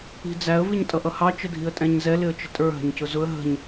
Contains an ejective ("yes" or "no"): yes